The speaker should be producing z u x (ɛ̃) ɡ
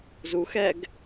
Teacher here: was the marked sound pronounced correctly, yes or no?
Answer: no